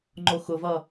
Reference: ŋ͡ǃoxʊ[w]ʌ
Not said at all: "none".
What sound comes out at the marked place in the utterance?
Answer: v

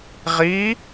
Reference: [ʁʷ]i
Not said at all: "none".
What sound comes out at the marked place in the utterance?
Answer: ʁ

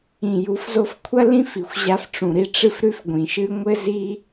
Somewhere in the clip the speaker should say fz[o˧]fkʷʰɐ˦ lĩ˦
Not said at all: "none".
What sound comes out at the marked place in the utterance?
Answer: o˧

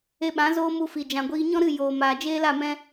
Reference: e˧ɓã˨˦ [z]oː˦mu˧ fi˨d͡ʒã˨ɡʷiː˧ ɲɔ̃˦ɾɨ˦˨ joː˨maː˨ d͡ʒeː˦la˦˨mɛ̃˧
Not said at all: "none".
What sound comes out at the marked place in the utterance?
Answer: z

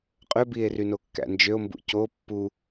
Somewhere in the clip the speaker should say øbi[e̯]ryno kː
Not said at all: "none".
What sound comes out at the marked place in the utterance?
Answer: e̯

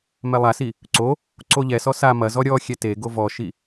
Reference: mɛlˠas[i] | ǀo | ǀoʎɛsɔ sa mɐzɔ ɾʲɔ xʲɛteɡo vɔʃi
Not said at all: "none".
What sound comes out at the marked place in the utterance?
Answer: i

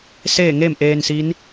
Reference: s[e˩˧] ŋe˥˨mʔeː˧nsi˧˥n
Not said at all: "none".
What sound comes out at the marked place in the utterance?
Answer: e˥˨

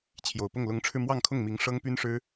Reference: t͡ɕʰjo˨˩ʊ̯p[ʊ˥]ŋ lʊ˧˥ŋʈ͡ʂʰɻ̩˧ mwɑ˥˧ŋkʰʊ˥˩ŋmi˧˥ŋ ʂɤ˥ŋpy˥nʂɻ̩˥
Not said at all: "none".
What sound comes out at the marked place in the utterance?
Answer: ʊ˥˩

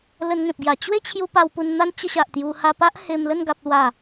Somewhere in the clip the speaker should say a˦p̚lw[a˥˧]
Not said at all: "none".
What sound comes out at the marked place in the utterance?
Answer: a˥˧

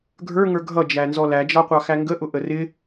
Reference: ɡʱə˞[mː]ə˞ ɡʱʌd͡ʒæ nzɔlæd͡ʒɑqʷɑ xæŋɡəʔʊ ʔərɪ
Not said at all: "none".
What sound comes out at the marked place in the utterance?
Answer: ŋ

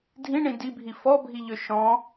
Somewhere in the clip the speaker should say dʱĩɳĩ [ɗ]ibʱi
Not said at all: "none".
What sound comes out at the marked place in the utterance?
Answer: d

